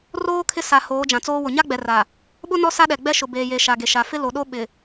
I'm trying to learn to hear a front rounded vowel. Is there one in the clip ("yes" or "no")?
no